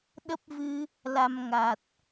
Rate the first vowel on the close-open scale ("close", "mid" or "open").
mid